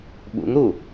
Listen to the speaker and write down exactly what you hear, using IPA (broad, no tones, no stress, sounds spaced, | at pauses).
ɓ ṵ ŋ ɾ u